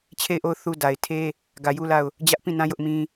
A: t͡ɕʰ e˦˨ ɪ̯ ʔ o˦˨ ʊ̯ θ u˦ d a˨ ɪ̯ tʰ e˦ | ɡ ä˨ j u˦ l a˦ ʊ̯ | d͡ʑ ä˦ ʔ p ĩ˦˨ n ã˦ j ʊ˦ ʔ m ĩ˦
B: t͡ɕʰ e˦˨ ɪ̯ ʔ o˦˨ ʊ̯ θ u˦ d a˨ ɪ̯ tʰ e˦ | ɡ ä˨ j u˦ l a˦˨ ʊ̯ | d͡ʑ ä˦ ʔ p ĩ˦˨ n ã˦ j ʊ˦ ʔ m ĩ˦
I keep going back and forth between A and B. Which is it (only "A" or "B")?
B